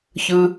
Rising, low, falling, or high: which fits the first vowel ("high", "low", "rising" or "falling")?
low